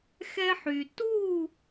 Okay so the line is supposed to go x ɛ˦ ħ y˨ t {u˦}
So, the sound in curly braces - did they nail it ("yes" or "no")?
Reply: no